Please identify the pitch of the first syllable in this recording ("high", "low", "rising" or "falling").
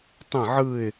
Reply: falling